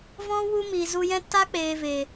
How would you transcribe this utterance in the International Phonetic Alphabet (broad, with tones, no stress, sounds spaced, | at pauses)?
v ɔ̃˦ w u˦ m i˨ z u˧ j ɛ̃˦ t a˦ k͡p eː˨ v e˨